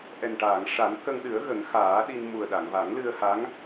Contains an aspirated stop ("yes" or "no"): no